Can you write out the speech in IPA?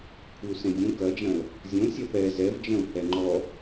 kʷʰɨu̯sẽdʲõ kɐd͡ʒɐ̃l | zʲõ sʲɐpɛ zɛvd͡ʒɐ̃u̯ hɛŋ͡ǃɔ

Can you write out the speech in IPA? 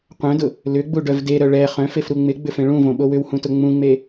qʷœ̃dʊ | lʏɡ͡buɖœv deɾœ ɭɛ χœ̃fefɾu ŋ͡mɪɡ͡bʏfẽ ɭũvõɓo wʏwhũtʊ ŋ͡mũŋ͡me

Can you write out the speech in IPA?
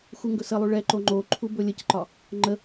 xuŋɡɵsəlˠu ɭɛǃo ŋ͡ǃo ǃʰubɵlʲəcǃɒ | ŋ͡ǃə

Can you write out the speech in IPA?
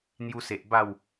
n̪ju˧se˨ʔ ba˥˧w

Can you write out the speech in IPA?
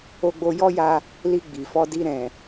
o˧ɡ͡bo˧ jɔ˦ja˧ | li˧ɡ͡bi˨fɔ˧di˧ ɾɛ̃˨

